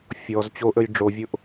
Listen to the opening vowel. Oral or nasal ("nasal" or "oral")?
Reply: oral